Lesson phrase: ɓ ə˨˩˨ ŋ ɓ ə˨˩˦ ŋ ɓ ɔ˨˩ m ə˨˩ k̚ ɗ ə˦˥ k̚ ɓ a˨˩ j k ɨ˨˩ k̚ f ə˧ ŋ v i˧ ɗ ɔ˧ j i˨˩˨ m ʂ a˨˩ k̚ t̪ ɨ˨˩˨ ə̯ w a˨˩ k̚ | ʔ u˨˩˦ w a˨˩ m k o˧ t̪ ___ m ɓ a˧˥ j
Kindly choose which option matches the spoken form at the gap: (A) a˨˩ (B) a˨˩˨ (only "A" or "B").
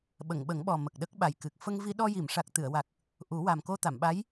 B